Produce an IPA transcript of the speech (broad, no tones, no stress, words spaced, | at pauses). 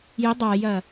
jɪ dˤajɐ